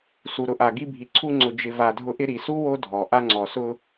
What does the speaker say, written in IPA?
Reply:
s u˩ ɾ ʊ˨ ʔ a˩ ɡ i˦ bʱ i˩ ǀʰ u˦ ŋ͡ǀ ʊ˨ d͡ʒ ɪ˨ v a˨ dʱ ʊ˦ ʔ ɪ˥ ɾ i˩ s u˥ w o˦ dʱ ɔ˩ ʔ a˦ ŋ͡ǀ ɔ˩ s ʊ˦

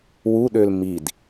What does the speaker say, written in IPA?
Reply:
w u ɗ ø l m i d

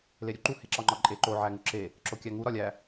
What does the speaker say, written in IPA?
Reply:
l e ɾʲ u ǃ u h e ǁ ɒ ŋ͡ǃ ɒ ǃʼ e ǃ o ʕ æ ŋ u ǁ e | ǁ o kʲ æ ŋ u ɾ ɒ lʲ æ

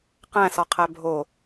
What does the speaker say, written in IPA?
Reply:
q æ̃ s ɒ qʰ æ bʱ o

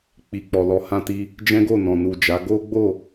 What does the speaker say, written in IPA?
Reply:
k͡p i˨ k͡p ɔ˨ l ɔ˨˦ h ã˧ t i˧ | d͡ʒ ɛ̃˦ ɡ o˦˨ n ɔ̃˨ n u˨ d͡ʒ a˨˦ ɡ o˦ ɡ͡b o˦˨

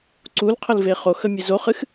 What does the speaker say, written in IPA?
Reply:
ǀ u l qʰ ə l v e χ o x ə mʲ e z o χ ɨ x

